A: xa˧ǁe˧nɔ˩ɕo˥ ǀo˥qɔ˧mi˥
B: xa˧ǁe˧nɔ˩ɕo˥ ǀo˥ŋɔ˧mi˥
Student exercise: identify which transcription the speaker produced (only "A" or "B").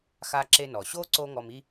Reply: B